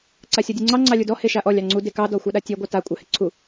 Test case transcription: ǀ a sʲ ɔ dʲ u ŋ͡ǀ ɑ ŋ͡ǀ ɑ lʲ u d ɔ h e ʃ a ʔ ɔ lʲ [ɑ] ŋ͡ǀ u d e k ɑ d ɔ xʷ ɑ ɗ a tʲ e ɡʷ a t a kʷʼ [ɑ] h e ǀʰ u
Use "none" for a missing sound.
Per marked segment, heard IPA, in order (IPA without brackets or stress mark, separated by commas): ɑ, ɑ